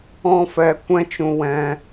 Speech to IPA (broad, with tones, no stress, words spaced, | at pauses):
ɔ̃˦fɛ˧ kʷɛ̃˦t͡ʃũ˧ wɛ̃˧